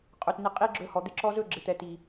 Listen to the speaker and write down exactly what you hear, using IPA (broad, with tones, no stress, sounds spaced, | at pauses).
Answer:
qʼ ɵ˨ t n ɪ˧ qʼ i˦ ɡ͡ǁ ɵ˧ h ɔ˨ d̪ ɪ˧ ǁ ɔ˧ z ɵ˦˨ ɡ͡ǁ ɪ˨ t̪ ɛ˨ t i˨